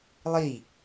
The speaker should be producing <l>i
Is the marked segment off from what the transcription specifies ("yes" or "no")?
yes